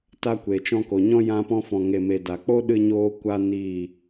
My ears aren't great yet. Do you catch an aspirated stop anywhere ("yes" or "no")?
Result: no